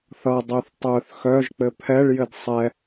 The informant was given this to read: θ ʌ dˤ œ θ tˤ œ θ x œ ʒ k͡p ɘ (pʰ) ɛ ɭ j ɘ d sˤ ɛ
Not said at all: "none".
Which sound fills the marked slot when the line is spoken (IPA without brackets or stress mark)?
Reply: pʰ